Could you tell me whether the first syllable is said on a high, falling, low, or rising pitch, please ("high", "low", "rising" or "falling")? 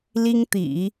high